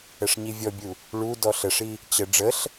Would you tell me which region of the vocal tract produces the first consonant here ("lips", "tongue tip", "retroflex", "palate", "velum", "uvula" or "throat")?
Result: retroflex